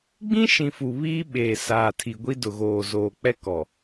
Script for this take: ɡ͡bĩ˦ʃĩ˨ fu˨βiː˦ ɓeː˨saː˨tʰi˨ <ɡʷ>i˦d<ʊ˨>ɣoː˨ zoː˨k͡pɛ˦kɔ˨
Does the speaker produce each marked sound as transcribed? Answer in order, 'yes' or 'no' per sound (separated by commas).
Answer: yes, yes